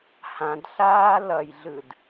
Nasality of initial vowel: nasal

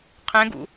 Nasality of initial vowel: nasal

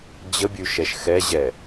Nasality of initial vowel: oral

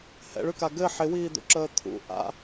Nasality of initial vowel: oral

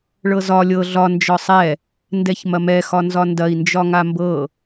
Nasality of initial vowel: oral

